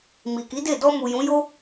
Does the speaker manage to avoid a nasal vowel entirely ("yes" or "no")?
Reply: no